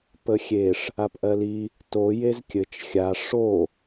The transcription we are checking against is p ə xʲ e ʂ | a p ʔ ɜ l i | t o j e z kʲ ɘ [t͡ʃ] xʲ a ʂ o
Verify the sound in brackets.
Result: correct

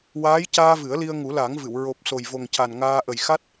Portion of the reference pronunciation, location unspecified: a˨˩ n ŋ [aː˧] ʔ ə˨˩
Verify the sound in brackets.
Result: correct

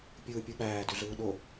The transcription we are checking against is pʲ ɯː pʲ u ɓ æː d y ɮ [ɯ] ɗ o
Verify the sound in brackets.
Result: incorrect: ɯː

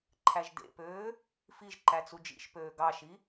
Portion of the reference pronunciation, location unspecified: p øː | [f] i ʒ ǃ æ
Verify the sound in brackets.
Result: correct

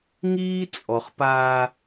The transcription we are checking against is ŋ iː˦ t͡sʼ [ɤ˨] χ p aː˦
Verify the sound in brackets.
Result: incorrect: ɔ˨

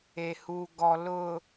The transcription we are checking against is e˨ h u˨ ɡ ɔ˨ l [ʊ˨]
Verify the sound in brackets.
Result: correct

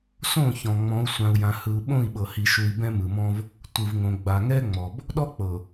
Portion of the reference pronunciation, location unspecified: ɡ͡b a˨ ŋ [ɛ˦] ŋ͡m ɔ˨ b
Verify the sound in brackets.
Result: correct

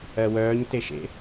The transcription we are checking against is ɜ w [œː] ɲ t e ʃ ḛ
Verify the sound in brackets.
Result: correct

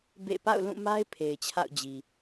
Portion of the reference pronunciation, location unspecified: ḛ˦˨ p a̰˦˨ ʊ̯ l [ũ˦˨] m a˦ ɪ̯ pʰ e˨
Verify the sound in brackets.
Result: correct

